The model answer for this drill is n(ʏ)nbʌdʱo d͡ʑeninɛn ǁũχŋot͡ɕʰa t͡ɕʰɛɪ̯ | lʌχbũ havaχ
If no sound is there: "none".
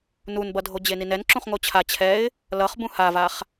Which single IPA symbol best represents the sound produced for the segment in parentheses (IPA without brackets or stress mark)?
u